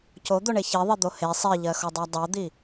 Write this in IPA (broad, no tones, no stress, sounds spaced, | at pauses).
c o d̪ o ɳ e ç i ðˤ i d̪ o h e sˤ i ʎ ɜ x o dˤ ɜ dˤ o d̪ i